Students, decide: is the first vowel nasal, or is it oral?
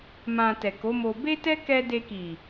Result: nasal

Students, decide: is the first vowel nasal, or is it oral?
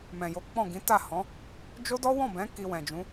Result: nasal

